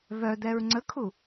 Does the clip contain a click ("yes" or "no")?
yes